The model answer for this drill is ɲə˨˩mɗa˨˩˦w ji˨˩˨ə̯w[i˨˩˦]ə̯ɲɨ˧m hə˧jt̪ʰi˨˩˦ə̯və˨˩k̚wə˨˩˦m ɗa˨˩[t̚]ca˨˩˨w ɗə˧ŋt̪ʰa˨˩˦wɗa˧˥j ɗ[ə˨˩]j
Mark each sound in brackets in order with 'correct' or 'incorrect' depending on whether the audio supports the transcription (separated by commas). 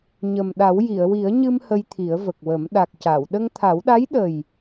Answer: correct, incorrect, correct